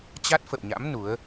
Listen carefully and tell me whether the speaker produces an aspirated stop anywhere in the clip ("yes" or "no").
no